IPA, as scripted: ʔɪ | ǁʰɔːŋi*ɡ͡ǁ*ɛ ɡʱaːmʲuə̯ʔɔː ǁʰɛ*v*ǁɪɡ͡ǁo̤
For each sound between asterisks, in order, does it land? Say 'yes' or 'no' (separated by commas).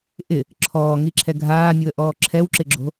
no, no